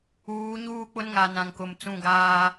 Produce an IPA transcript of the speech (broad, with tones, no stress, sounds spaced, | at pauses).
uː˨˦ ɲ uː˦˨ k͡p ʊ˦ n ŋ a˨ n ã˨ ŋ k ʊ˨ m t͡s ũ˦˨ ɡ aː˦